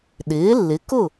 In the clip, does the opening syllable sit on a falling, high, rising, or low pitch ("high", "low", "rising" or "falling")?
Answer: rising